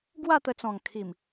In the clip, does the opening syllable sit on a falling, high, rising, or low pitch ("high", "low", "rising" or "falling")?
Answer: falling